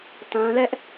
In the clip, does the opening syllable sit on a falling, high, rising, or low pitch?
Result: high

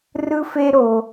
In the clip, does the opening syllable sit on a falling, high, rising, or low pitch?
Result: high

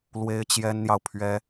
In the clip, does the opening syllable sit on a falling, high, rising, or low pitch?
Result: high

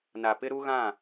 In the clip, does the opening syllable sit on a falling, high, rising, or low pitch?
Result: low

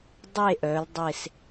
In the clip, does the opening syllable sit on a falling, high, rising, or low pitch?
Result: falling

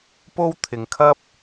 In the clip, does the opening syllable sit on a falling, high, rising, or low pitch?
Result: high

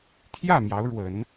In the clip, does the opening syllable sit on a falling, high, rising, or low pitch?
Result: falling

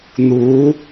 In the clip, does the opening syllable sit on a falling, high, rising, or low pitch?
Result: rising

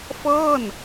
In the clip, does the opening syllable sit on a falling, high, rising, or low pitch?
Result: falling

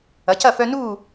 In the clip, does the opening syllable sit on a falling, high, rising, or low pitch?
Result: rising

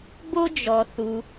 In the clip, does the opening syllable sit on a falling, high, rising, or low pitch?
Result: high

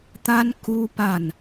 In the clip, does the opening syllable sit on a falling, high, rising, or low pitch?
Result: high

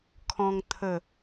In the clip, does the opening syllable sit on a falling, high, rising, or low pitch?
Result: high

